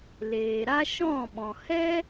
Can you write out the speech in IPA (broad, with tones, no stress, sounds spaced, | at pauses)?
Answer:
l eː˨ ɾ a˦ ʃ ɔ̃˦˨ ɓ ɔ̃˨ h ɛ˦